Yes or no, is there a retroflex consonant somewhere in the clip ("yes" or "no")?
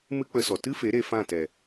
no